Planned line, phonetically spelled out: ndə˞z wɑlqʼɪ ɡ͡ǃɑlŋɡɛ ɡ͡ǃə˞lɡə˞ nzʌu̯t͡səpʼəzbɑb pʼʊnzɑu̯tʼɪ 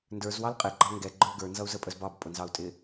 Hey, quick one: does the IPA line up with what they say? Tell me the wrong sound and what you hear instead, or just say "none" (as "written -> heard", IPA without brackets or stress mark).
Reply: t͡s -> z